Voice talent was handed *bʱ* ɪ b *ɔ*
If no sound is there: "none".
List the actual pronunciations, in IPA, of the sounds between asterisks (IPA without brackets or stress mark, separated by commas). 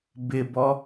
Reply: b, ɔ